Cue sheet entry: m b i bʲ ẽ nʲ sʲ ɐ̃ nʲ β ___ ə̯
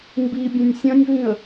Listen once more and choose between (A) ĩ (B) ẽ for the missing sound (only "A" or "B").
A